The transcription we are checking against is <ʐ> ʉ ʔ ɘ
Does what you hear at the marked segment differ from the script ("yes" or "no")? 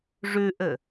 no